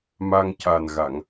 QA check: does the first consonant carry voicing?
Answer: yes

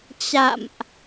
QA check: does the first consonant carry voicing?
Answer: no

